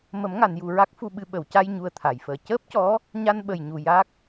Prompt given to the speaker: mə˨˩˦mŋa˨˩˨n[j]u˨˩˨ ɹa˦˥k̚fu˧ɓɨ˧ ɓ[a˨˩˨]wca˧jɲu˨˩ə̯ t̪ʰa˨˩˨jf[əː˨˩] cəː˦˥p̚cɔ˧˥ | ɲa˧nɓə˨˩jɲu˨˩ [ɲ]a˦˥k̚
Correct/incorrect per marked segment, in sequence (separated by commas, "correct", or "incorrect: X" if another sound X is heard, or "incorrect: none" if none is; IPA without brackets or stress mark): correct, incorrect: ə˨˩˨, correct, incorrect: j